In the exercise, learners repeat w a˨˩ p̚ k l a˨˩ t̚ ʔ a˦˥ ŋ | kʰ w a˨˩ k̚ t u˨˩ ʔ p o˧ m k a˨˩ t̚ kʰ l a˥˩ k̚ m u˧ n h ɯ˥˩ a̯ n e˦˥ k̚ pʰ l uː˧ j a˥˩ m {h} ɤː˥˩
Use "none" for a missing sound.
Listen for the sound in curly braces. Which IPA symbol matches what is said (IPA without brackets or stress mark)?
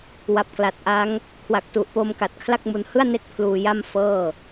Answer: f